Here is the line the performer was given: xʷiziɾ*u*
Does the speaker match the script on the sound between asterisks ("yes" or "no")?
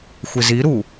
yes